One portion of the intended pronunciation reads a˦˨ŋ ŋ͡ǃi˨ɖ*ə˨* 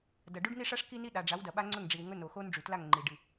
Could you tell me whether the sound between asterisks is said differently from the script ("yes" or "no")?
yes